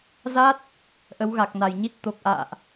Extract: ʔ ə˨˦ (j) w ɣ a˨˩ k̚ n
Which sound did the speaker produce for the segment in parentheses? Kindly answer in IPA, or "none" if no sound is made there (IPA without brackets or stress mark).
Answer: none